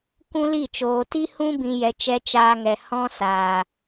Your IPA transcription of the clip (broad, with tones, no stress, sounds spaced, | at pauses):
kʷ ũ˦ l i˦˨ t͡ʃ oː˨ t i˦ h ũ˦ b ĩ˧ j ɛ˧ t͡ʃ ɛ˧ t͡ʃ aː˧ ŋ ɛ˨ h ɔ̃˧ s aː˨